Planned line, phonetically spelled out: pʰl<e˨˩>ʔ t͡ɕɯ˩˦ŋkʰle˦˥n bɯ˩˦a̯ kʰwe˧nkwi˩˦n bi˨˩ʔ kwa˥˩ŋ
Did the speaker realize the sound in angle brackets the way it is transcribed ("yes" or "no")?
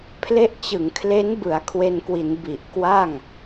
no